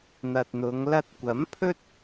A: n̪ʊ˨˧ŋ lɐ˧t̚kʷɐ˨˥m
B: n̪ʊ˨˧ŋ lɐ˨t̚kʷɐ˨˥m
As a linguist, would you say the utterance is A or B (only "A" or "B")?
A